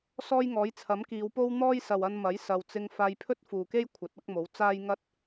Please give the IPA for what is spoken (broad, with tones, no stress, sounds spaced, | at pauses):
s ɔː˥ j ŋ ɔː˨˥ j t͡sʰ ɐ˨˥ m k iː˨˧ w p o˥ w n̪ ɔː˥ j s ɐ˨ w ɐ˧ n m ɐ˨˥ j s ɐ˨ w t͡s ɪ˧ ŋ f aː˧ j pʰ ɵ˥ t̚ f uː˨ k e˥ j kʷʰ ɐ˨˥ t̚ ɐ˥ k̚ m o˨˥ w t͡s aː˥ j ŋ ɐ˥ t̚